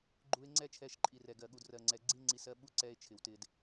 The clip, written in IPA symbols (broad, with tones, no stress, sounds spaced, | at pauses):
ɡ͡ǃ u˧ e̯ ŋ͡ǀ ɛ˦ t͡ʃʰ ɛ˧ ʃ ǃʼ i˨ r ɛ˨ ɡ ɜ˨ ɠ u˨ d r ɜ˨ ŋ͡ǀ ɛ˨ ɡ͡ǀ i˦ ŋ͡ǀ i˧ s ɜ˧ ɓ u˧ ǀ ɛ˧ e̯ t͡ʃʰ ɪ˨ w t ɪ˧ d